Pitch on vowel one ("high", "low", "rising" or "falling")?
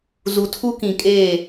low